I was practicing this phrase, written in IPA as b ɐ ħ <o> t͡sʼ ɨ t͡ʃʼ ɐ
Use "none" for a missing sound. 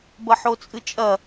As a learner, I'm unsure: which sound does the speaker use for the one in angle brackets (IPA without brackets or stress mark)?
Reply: o